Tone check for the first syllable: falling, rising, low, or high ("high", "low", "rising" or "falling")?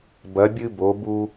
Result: rising